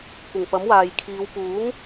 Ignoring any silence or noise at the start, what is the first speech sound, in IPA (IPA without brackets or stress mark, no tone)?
kʷ